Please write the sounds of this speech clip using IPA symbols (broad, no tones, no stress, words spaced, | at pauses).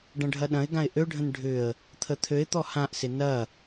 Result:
ɖɐ̃ɖʱɐɗɐ̃ɪ̯ɡãɪ̯ ʔøɖʱə̃n ɖʱʏə̯ | t̪ʰət̪ʰøɪ̯t̪ɔ hãʔsɪ nɐ